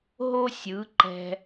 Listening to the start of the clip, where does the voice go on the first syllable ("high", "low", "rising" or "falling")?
high